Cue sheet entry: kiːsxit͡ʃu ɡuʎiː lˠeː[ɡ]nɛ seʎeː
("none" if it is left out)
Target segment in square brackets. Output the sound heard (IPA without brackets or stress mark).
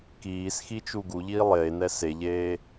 none